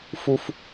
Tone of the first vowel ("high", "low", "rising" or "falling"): high